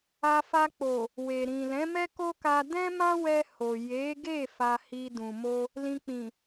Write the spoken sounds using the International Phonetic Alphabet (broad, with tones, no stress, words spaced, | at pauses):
a˧fa˧k͡po˨ | we˨ɾĩ˨lɛ̃˨˦mɛ˦ ko˦ka˧ dɛ̃˦mã˦wɛ˧ ho˨ je˨˦ɡe˦˨ fa˧hi˧ dũ˨mo˧ | lĩ˧k͡pĩ˨